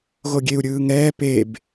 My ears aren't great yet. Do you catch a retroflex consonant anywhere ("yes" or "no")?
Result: no